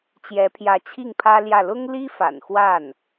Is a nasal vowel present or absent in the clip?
absent